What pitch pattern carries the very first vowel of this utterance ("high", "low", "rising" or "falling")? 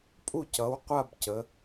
falling